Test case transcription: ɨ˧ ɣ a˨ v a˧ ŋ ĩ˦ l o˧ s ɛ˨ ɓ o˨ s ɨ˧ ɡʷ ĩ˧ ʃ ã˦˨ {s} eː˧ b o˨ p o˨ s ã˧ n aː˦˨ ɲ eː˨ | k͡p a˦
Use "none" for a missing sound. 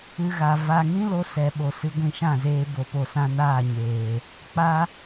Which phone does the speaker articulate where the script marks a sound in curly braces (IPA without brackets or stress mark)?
z